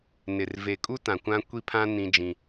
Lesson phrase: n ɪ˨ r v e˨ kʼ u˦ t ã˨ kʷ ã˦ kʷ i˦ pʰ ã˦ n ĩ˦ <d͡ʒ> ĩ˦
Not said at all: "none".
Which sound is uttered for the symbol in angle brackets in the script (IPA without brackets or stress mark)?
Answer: d͡ʒ